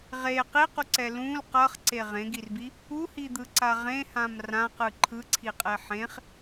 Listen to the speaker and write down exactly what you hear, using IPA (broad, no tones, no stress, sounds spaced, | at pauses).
ʁ e q i q u ǀ ɛ l ũ l q ʌ χ ǀ e ʁ ẽ ɡ i r b i | u h i d̪ ɯ ǀ a ʁ ẽ h ã m r ã q ɯ ǃʰ ɯ ǀʰ i qʼ ɛ ħ ẽ χ